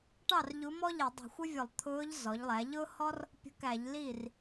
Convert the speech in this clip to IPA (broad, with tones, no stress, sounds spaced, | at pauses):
ʈ ɑ˥˩ r ʎ u˧˥ m ɔ˥ ʎ ɛ˧˩˧ dˤ ə̤˧˩˧ xʷ ɪ˥ vʲ ʊ˧˩˧ lˠ t̪ʰ ʊː˧˥ ʎ z ɔ˩˥ ʎ lˠ æ˩˥ ʎ ʊː˥ h ɔ˥ r | pʲ ə̤˧˥ k æ˧˩˧ ʎ l iː˥˩ r